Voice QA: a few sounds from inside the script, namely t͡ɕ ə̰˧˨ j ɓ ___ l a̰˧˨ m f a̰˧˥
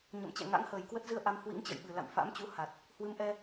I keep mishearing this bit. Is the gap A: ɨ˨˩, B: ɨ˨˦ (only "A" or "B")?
A